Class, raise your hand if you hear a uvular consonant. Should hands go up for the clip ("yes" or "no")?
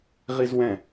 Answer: yes